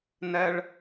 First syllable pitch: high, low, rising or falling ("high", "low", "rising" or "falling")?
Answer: high